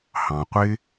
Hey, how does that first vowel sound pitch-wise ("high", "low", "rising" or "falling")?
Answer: low